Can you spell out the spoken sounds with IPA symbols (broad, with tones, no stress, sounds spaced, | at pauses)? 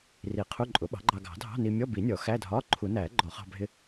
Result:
r i˨˩˦ qʰ u˧˥˧ ǃʼ ʊ˩˥ ɓ ɑ̤˩˥ ɡ͡ǃ ɑ˧ ɡ ɑ̤˨˩˦ dʱ ɑ̤˧˥˧ n i˧ mʲ ɔ˧˥˧ b i˨˩˦ nʲ ɔ˨˩˦ x æ˧˥˧ dʱ ɒː˧˥˧ ǃʰ u˨˩˦ n æː˨˩˦ ɡ͡ǃ ɔ˨˩˦ χ ɑ̤˧ bʱ ɪ˧